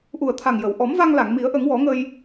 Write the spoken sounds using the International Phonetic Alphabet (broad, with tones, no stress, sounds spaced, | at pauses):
ʔ u˨˩ ə̯ t̪ʰ a˨˩ ŋ j ə˨˩˨ w ʔ ɔ˨˩˦ m v a˧ ŋ l a˨˩˨ ŋ m i˨˩˦ ə̯ ʔ ə˨˩˦ ŋ w ɔ˨˩˦ ŋ ə˧ j